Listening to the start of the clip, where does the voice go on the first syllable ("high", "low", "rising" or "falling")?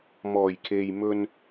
low